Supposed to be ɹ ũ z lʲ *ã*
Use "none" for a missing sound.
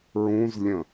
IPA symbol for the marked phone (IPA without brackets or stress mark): ə̃